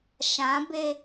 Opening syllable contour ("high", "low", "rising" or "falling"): rising